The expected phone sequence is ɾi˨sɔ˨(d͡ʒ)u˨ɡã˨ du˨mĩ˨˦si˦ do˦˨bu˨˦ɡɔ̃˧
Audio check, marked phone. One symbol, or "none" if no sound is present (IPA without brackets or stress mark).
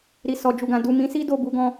d͡ʒ